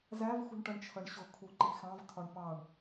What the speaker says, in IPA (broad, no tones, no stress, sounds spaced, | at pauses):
z æ v x ṳ ɳ ʈ ʌ ɳ t͡ʃʰ ʌ ɳ ɕ ʊ kʰ u ǃ i x ɑ̃ v tʰ ɒ ɳ p ɑ ɳ